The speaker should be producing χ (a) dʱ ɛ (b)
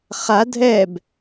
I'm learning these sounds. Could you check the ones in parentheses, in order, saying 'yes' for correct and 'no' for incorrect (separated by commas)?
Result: yes, yes